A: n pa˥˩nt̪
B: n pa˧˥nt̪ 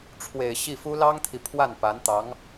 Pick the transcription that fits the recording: B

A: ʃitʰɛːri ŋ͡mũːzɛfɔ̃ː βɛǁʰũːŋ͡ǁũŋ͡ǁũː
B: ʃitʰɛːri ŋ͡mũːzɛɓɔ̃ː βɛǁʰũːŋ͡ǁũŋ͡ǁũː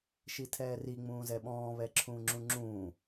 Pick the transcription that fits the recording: B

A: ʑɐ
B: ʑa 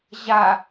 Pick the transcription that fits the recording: B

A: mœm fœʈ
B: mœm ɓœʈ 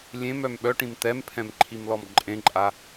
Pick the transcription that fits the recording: B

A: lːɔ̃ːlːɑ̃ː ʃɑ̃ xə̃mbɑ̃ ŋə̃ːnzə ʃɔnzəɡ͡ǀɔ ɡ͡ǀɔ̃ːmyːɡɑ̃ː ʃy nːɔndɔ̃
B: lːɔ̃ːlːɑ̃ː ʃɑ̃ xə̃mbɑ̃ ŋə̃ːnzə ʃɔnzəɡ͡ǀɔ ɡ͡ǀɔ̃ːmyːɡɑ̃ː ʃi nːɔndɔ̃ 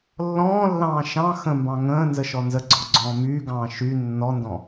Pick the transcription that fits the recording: A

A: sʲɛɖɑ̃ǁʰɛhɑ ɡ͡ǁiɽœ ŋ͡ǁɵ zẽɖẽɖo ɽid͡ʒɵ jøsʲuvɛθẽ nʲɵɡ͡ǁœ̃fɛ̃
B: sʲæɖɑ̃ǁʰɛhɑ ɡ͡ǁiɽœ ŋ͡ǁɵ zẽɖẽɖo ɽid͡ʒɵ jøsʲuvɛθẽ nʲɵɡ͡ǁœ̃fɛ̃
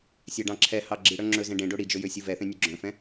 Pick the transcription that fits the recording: B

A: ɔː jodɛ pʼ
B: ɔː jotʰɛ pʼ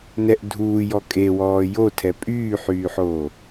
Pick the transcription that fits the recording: B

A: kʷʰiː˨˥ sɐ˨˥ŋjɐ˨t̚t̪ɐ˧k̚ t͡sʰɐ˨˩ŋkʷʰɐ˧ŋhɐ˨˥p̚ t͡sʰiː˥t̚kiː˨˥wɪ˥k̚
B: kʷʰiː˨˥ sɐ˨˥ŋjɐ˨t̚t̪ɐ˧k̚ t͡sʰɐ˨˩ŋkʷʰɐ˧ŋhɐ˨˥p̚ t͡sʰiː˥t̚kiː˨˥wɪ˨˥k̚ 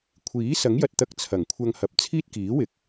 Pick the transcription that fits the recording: B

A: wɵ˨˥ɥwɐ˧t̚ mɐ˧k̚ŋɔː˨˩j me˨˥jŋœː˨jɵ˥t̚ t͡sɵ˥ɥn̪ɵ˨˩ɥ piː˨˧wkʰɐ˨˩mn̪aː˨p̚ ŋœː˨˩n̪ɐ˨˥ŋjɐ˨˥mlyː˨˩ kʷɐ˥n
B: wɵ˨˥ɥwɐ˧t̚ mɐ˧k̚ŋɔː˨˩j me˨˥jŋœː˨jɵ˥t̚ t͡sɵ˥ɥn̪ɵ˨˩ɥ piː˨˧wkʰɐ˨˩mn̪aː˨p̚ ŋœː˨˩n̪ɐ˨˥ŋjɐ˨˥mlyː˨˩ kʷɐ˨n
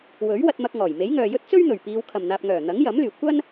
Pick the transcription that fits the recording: A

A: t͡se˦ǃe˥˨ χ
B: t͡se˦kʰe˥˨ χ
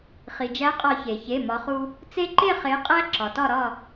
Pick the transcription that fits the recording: A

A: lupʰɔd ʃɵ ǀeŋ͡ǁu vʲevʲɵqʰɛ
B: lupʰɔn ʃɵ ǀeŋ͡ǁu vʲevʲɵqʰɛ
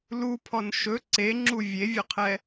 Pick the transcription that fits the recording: B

